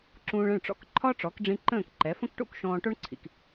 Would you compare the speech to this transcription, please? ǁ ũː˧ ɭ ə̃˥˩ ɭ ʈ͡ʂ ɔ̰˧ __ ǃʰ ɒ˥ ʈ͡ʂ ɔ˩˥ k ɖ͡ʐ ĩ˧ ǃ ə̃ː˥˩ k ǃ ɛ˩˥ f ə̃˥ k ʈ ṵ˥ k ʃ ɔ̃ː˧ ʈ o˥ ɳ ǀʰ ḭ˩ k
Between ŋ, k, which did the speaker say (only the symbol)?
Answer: k